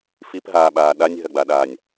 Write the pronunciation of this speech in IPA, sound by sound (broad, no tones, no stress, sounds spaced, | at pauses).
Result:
f i p ɦ aː ɓ aː ɗ a nʲ ɦ ɐ ɡ͡b a ɗ aː nʲ